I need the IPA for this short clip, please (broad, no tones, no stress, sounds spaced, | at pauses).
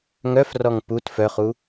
ŋ œ f r ɔ ŋ p u t f œ χ u